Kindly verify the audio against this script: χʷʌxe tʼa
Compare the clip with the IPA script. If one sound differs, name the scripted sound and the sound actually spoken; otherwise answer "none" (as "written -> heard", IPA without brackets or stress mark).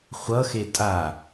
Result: none